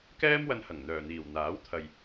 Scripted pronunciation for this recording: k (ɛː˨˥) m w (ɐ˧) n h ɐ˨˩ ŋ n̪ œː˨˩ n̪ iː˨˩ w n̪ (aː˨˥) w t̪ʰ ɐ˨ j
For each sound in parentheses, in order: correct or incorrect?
incorrect, correct, correct

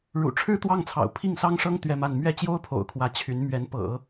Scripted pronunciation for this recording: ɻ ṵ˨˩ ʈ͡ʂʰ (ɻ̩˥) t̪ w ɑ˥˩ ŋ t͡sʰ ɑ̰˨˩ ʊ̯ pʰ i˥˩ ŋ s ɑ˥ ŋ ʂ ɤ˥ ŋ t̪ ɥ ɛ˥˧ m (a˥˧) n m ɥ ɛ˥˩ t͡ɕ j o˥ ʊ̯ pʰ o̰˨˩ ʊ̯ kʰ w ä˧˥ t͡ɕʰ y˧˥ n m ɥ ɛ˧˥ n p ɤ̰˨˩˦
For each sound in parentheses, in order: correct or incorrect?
correct, correct

